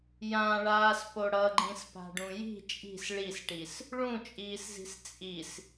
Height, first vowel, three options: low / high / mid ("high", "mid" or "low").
low